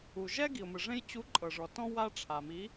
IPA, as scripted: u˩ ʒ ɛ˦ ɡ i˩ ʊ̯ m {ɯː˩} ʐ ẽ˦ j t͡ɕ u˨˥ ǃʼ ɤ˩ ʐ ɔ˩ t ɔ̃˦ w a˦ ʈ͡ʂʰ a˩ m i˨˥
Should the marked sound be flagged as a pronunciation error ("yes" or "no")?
yes